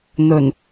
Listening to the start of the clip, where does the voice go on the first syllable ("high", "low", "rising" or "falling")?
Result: low